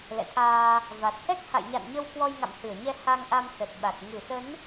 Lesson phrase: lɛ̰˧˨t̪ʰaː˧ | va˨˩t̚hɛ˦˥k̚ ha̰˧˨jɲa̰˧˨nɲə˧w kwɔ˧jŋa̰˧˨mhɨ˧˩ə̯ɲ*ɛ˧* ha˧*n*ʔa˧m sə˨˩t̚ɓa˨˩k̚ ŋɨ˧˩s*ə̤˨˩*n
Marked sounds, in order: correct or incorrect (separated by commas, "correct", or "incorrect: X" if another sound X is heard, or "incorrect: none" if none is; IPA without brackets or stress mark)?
correct, incorrect: ŋ, incorrect: ə˨˦